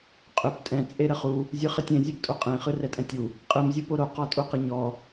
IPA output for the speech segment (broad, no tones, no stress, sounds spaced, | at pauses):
qʼ ʏ p tʼ ɛ̃ t͡sʼ e ɾ ə χ u | zʲ ɯ χ ə tʲ ẽ zʲ ɯ p tʼ o qʼ ẽ χ ɯ r ɛ tʼ ɛ̃ tʲ u | qʼ ɯ m zʲ o p o ɾ o q ɔ tʼ u q ə ɲ ɔ